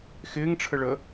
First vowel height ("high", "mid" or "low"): high